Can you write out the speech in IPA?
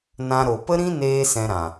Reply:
n ã˧ ɾ o˨ p ə˦ ɾ ĩ˦ n eː˦ s ɛ̃˧ ɾ ã˨

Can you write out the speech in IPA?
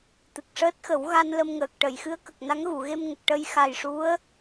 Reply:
t̪ ɨ˨˩ k̚ ʂ əː˦˥ t̚ x ə˨˩˦ w ɣ a˧ n l ə˧ m ŋ əː˨˩ k̚ ʈ ə˨˩˨ j x ɨ˧˥ ə̯ k ə˨˩ k̚ n a˧˥ ŋ ɣ u˨˩˨ ɣ e˧ m ŋ ə˨˩ k̚ ʈ ə˧ j x a˨˩ j ʂ u˧˥ ə̯

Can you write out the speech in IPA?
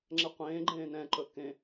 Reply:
ŋ͡ǁ ɛ qʷ ẽː ɡ͡ǃ ẽː n ɛ̃ ǃ ɵ k ẽ

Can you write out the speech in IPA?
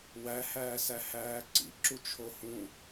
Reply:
w æ h æː s æ h æː ǀ ḭ ǁ u t͡ʃʰ o h ũ

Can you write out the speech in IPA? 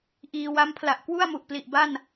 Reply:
ʔ iː˧ w a˦˥ m pʰ l a˨˩ ʔ k w u˥˩ a̯ m u˨˩ ʔ p l i˨˩ ʔ b a˥˩ n

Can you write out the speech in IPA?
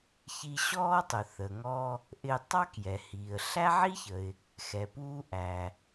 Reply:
ç i˧ ɕ ɔː˥ tˤ ʊ˩ θ ə˩ ŋ ɔ˧ | ʔ ɪ˧ tˤ ɑ˥ k j ɛ˩ h iː˩ ə̯ ɬ æ˥ ʕ i˥ ç ə˩ ɪ̯ | x ɛ˩ p uː˥ ʔ æ˩

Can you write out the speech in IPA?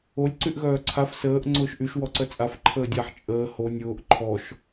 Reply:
o lʲ ǀ y ʔ ɣ œː ǀʰ a f s əː ʔ ŋ͡ǀ ʊː ʃ ʔ y ʃ w ɔ ǀ œ t͡sʼ a f ǃʰ əː dʲ a ħ t͡ʃʼ əː h o nʲ ʊː ʔ ǃʰ ɔ ʃ

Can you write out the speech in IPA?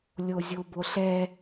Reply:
lʲ o zʲ o b o ɬ ɛ

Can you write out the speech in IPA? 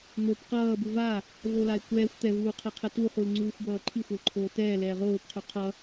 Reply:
n̪ o p q ʌː b u v a | v o l a ɪ̯ kʷ ɛː xʷ t̪ ɛ v uː qʰ ɛ qʰ ɛ t u χ u l ŋ͡ǀ uː xʷ b ʌː ǃʰ i xʷ ʌ l ǃʰ oː t ɛː l ɛː ʁ oː p qʰ u qʰ ʌ

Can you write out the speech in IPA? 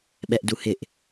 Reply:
ɓ ɛ ʔ d u h ɪ ʔ

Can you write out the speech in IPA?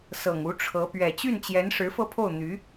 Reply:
s ɤ˨˩ ŋ u˧˥ ʈ͡ʂʰ ɤ˧˥ p ɥ ɛ˨˩ t͡ɕ y˥˩ n t͡ɕ j ɛ˧˥ n ʂ ɻ̩˧˥ f ɤ˥˧ pʰ o˥˩ ʊ̯ n̪ y˧˥

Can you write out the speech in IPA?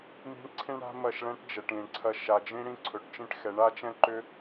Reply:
m i̤˦ ɳ ǀʰ ĩ˦ ɳ ɽ a̤˦ m ɐ˦˨ ʃ ɭ ɛ̃˦ ʈ d͡ʒ ɛ˨ ʈ ĩ˨ ɳ ǀʰ ɐ˦˨ ʃ a˨ d͡ʒ ĩ˦ ɽ ĩ˦ ǀʰ ɵ˨ ʈ t͡ʃ ĩ˦ ʈ x ɛ˨˦ ɳ a˦ t͡ʃ ɛ̃˦ ǃ ʏ˦

